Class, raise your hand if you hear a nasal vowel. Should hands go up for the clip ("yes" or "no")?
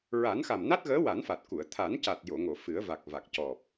no